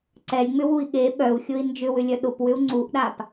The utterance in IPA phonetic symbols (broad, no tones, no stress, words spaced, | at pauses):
ǀɛlʲŋ͡mʏwui̯ ɠe ɓœu̯xʲʊi̯ nd͡ʒʏwʏlʲœ ɗʊpwʏu̯ ŋ͡ǀuʔɗap